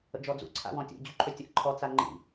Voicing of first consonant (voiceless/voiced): voiced